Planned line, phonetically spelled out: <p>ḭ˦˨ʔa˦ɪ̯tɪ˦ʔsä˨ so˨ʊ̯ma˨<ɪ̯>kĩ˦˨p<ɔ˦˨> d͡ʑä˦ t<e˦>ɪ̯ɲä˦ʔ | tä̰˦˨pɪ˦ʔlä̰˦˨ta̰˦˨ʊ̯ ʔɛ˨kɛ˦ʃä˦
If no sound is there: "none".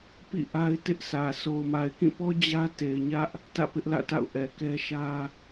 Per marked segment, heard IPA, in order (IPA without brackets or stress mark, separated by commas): p, ɪ̯, ɔ˦, e˨